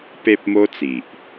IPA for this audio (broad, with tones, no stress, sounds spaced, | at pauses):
p e˦ p̚ m o˦ t͡s i˨ ʔ